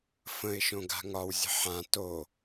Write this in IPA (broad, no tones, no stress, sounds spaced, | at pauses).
f ə̃ ɪ̯ ʃ õ ɡ a̤ ŋ ɒ w zʲ ə̤ ħ ã t o